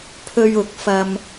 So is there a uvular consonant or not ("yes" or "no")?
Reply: no